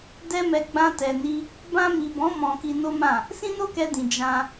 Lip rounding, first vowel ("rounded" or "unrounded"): unrounded